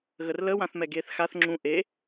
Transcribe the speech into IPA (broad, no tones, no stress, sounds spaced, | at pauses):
ɣ ə r l ə w ã θ m ɛ ɡ eː θ x a θ ŋ͡ǁ ũ ʔ e